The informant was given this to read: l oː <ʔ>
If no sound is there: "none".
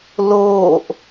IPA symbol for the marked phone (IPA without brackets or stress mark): ʔ